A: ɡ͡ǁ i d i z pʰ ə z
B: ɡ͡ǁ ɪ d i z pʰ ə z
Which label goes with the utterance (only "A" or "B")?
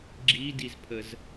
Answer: A